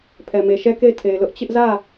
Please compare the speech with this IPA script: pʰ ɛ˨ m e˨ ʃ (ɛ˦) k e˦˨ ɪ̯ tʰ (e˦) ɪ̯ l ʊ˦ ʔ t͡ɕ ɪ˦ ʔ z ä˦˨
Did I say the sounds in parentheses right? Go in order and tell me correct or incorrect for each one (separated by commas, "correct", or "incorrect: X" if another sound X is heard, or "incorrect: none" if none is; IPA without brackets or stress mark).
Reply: correct, incorrect: e˨